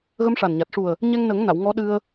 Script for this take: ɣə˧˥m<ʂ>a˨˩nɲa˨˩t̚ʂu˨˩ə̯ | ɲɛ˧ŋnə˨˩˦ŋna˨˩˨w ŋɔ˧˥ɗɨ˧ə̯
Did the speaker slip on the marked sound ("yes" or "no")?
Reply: no